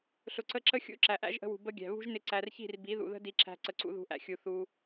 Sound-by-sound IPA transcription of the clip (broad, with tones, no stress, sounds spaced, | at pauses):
ɬ ʊ˨ ǀ ə˧ ǁ ə˦ xʲ ṵ˦ ǁ æ˨ ʔ æ̰˦ ʒ ʔ ə̤˧ w ṳ˨ b ə˦ ɡʲ æ̤˨ β ṳ˦ ʒ n ɪ˧ ǀ æ˨ r ç i̤˦˨ r b i˨˦ ð ṵ˨ ð ə̤˦ d i˧ ǁ æ̤˧ ǀ ə˨ ǀ ṵ˧ ð ṳ˧ ʔ æ̰˧ xʲ u˨ θ u˧